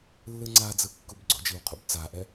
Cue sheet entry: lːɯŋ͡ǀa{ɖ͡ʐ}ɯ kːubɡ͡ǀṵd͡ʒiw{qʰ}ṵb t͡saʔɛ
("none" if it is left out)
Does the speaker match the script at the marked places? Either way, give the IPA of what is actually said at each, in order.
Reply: d͡z, qʰ

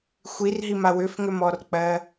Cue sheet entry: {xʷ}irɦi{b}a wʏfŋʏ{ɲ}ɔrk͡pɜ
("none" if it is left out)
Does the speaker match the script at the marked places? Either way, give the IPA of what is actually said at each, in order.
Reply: xʷ, m, m

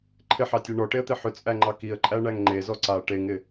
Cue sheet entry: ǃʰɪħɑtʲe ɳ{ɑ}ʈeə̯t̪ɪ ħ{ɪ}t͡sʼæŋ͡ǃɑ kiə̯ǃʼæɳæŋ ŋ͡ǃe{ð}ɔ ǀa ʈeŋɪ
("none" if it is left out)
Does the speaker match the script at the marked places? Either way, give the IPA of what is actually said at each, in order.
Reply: ɔ, ʏ, z

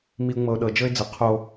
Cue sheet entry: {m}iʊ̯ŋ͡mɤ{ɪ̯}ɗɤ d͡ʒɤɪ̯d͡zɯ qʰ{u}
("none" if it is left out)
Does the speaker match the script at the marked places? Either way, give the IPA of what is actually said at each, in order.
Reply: m, ʊ̯, o

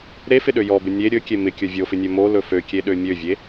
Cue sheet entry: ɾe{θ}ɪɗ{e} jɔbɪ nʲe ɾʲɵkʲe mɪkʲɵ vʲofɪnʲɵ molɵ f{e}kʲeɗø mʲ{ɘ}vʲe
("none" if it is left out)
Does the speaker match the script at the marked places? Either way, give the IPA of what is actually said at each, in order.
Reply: f, ø, ø, ø

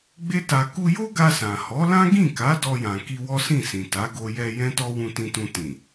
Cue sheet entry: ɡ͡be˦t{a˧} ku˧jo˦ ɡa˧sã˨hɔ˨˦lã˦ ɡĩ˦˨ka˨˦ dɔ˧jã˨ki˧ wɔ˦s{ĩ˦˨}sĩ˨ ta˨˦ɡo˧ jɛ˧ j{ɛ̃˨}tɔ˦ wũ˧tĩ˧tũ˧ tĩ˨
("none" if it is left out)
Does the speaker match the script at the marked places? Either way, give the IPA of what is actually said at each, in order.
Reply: a˧, ĩ˦˨, ɛ̃˦

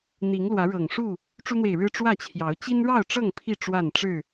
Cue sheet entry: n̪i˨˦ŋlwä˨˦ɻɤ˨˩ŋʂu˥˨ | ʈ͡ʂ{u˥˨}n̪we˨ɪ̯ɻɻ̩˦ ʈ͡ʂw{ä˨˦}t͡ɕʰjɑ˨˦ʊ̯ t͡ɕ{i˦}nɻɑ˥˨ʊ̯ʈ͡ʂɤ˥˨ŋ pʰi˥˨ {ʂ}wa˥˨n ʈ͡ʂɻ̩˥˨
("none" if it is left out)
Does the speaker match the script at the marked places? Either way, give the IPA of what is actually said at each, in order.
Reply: u˦, ä˥˨, i˦, ʈ͡ʂ

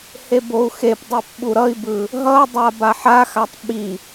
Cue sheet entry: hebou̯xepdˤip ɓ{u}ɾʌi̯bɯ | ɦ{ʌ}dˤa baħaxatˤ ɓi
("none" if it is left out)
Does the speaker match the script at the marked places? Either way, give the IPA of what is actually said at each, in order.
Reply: u, ʌ

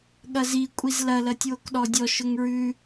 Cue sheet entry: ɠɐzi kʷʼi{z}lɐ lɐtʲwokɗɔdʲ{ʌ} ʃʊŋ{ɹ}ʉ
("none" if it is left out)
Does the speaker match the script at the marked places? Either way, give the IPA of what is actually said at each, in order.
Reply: z, ɔ, ɹ

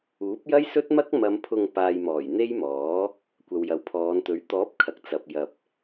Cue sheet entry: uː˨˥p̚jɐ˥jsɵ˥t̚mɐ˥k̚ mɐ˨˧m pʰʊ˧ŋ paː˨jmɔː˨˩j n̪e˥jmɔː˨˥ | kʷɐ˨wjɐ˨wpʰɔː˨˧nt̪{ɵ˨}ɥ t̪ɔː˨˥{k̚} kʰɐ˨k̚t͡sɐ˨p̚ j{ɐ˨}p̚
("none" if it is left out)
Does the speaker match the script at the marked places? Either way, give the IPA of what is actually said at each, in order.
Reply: ɵ˨˥, p̚, ɐ˨

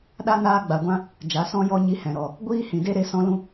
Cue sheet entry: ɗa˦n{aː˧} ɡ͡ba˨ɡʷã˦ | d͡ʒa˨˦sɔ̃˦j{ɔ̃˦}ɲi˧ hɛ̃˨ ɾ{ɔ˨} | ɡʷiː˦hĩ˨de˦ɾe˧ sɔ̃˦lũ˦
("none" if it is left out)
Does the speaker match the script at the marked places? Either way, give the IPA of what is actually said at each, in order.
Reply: aː˧, ɔ˦, ɔ˨

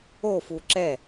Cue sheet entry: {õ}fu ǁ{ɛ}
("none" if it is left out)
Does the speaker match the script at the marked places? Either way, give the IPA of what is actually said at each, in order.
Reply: o, ɛ

